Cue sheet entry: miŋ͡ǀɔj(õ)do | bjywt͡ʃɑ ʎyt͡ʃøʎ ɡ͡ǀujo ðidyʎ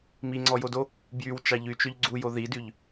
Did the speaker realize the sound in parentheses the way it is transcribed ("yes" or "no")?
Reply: no